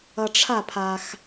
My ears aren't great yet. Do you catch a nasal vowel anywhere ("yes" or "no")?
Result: no